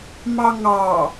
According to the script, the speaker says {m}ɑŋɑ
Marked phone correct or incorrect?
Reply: correct